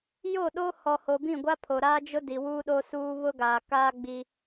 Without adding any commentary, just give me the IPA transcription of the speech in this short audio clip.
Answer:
j o˦˨ ɗ o˦ h ɔ˨ h o˨ b ĩ˦˨ ɡʷ a˦ pʰ o˨ ɾ aː˦ d͡ʒ ʊ˦ d i˨ w uː˦ ɗ o˦ s uː˦ β ʊ˦ ɡ aː˨ k aː˦ ɡ͡b i˦

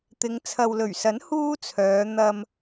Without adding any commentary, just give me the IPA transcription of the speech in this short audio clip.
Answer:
t̪ ɪ˨˧ ŋ t͡sʰ ɐ˨ w l ɵ˨˩ ɥ s ɐ˨˥ n h uː˥ t͡sʰ œː˨˧ n̪ ɐ˧ m

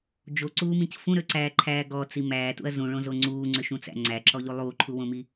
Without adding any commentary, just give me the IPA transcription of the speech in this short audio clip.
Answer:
d͡ʒ o ǀ uː m ĩ c f ũ ɾ ø ǀ æː ǃʰ æː ɡ ɔ t͡s i m æː t ṵ ɐ̯ z ũ ɭ õ z o ŋ͡ǀ uː ŋ͡ǀ ø ʃ ũ t͡s æ̰ ŋ͡ǀ æ ǁ ɔ ʎ u lˠ uː ǃʰ u w õ m i

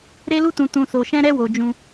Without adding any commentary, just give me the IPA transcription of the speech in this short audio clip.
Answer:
ɾ e˧ l u˧ t ũ˨ t ũ˨ s o˨ ʃ ɛ̃˧ ɾ ɛ˧ w o˨ d͡ʒ ũ˧

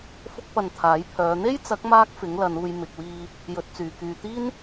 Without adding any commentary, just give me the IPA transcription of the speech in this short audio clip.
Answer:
f ʊ˥ k̚ p ɐ˧ n t̪ʰ aː˨˥ j pʰ œː˨˧ n̪ e˥ j t͡s ɐ˨˥ k̚ m aː˥ k̚ f ɪ˨˥ ŋ l ɐ˨˧ n uː˧ j m ɪ˨ k̚ w iː˧ | j ɵ˨˥ t̚ t͡s yː˨ k yː˨ t̪ iː˥ n

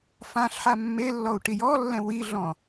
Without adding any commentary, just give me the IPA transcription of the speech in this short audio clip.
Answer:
f ã ɬ ħ a mː e lː ɔ u̯ ʈ i j ɔ lː ɛ̃ w i ɮ ɔ̃

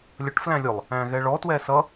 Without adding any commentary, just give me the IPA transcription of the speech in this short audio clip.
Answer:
lʲ ʌ ʈ f l æ̃ lʲ ʊ lˠ | æ̃ ɣ ɛ ɭ ɔ t w ɛ s ʌ

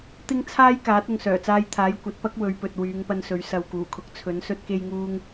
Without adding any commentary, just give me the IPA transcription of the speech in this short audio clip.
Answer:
t̪ ɪ˥ ŋ t͡sʰ aː˥ j k aː˨˥ t̚ ʊ˨ ŋ s œː˨˩ t͡s aː˧ j t̪ʰ aː˨˥ j kʷ ɐ˨˥ t̚ p ɐ˥ k̚ w ɵ˨˧ ɥ p ɵ˨ t̚ w yː˨˧ ŋ p ɐ˧ n s ɵ˨˧ ɥ s ɐ˨ w k uː˨˩ kʰ ʊ˨˥ k̚ t͡sʰ ɵ˨˥ n s ɵ˥ t̚ k e˥ j ŋ uː˥ ŋ

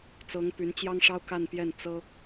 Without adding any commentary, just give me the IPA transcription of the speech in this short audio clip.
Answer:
t͡s ɤ˧˥ ŋ p y˧˥ n t͡ɕ j ɑ˥ ŋ ʂ ɑ˥ ʊ̯ k a˥˧ n p j ɛ˥˩ n t͡s ɤ˥

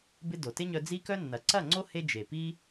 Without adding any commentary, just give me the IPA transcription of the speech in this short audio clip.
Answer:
b ɪ˦ d o˨ t ɪ˦ ɲ œ˧ d͡z i˦ k œ˦ nː ɐ˨ ǀ ɐ˦˨ ŋ͡ǀ o˦ h e˧ d͡ʒ e˨ p i˦

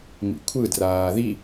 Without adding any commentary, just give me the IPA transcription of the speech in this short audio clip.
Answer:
m ḭ kʷʰ ɯ d r aː ð i

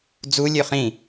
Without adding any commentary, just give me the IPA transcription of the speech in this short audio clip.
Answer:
d͡z u lʲ ø χ ĩ

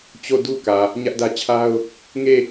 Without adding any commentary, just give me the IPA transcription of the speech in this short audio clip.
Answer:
t͡ɕ o˦˨ d u˦ k ä˨ | ɲ ä˦ ʔ d ä˦ t͡ɕʰ a˦ ʊ̯ | ŋ e˦˨

